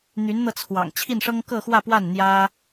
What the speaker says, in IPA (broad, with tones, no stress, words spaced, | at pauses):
n̪y˧˥nn̪ɤ˧t͡sʰwɑ̰˨˩ŋ t͡ɕʰi˥˩nʂɤ˥ŋ kɤ˥˧xwä˥˧pwa˥˩n n̪jä˥